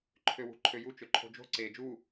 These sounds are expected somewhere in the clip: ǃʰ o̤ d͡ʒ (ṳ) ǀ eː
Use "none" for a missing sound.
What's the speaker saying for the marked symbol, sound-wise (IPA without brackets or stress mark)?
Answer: o̤